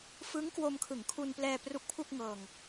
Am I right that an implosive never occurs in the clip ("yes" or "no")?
yes